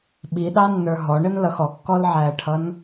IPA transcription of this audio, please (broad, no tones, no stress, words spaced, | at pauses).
ɓiɗɑnːə˞ ɦɔɳənlʌx ɔkːɔlʕæːʈʰʌn